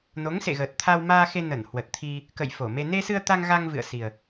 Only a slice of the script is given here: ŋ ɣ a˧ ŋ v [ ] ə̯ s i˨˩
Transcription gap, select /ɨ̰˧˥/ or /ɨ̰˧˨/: ɨ̰˧˨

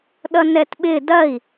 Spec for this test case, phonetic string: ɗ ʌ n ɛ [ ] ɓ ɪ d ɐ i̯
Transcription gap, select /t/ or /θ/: t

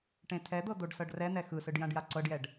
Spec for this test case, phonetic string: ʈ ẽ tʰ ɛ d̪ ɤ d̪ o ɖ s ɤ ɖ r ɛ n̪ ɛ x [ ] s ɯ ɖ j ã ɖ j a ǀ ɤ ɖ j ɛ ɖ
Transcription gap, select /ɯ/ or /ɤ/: ɯ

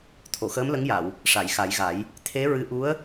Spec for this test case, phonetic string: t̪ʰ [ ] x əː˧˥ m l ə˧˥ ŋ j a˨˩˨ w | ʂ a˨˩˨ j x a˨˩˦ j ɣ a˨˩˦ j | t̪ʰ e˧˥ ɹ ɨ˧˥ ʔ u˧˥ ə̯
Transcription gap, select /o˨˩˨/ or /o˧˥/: o˨˩˨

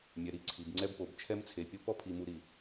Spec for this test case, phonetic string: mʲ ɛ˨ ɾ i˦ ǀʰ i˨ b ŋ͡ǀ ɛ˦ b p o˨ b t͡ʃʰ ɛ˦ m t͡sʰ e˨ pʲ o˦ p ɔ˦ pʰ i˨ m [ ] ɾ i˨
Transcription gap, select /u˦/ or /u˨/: u˨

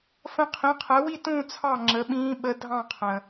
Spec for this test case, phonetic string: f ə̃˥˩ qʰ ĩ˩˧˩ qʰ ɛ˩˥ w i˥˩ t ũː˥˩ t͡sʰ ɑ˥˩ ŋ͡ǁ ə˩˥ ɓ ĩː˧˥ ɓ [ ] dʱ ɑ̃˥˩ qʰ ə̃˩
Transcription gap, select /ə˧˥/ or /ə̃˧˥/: ə˧˥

